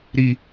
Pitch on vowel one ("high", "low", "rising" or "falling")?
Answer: low